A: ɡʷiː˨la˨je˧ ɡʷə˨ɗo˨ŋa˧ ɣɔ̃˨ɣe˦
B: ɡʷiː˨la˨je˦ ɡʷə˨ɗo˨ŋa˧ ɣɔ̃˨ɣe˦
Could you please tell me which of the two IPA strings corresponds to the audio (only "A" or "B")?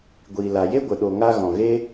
B